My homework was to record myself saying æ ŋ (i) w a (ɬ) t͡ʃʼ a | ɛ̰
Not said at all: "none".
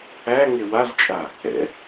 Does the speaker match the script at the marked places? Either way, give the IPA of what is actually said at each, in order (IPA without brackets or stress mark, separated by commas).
e, z